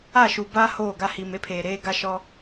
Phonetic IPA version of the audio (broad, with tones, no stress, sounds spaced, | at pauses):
a˦˨ ʃ u˨ b aː˦ h oː˦˨ ɡ a˦ h i˨ m e˦ pʰ eː˨ ɾ eː˦ ɡ a˦ ʃ ɔ˦